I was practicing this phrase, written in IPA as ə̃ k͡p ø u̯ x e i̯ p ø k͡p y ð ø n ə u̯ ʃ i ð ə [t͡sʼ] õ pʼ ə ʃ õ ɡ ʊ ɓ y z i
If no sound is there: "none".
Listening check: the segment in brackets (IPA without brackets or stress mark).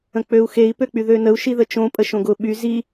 t͡ʃ